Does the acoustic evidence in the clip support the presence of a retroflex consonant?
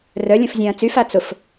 no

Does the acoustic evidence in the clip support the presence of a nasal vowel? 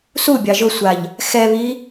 no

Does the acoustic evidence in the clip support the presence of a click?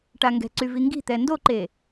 yes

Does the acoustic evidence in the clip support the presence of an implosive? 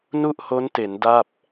no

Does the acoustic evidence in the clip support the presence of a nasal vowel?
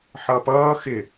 no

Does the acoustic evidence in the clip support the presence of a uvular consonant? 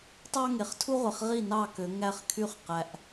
yes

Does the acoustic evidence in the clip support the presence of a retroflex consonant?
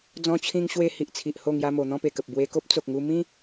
no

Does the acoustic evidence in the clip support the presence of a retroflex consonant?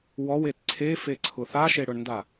yes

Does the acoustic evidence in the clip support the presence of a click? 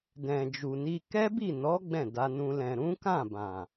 no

